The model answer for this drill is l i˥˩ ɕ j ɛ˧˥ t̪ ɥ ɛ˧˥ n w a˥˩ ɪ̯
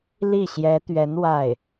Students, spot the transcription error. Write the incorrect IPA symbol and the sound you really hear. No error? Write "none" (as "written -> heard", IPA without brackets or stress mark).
none